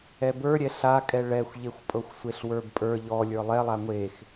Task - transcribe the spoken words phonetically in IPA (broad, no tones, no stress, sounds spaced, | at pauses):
ɛ b ə˞ ɾʲ ɛ ɬ a kʼ ɛ ɭ ɛ xʷ ʎ e xʷ pʼ ɤ xʷ sʷ e ɬ w ə˞ b pʼ ə˞ ʎ ɔ lʲ ə˞ lˠ ɛ lˠ a ŋʷ e x